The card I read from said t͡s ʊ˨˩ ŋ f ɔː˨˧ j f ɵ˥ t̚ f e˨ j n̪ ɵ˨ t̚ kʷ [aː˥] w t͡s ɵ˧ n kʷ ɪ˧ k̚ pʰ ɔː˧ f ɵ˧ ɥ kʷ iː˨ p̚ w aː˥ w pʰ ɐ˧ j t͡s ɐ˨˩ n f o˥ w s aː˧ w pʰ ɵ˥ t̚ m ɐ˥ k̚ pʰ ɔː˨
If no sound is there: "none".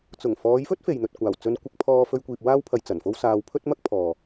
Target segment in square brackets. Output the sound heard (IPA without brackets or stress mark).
aː˨˩